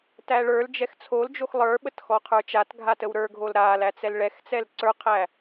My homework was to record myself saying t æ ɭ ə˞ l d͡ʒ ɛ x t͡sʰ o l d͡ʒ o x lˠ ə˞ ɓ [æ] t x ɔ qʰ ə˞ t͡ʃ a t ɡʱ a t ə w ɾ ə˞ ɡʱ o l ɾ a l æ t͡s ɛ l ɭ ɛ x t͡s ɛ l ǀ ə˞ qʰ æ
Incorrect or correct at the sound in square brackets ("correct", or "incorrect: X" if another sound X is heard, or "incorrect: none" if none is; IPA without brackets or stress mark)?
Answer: incorrect: ə